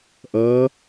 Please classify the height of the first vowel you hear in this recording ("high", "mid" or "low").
mid